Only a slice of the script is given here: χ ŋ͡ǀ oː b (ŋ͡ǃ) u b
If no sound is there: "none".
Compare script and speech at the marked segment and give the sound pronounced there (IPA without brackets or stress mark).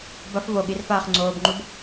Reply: ŋ͡ǃ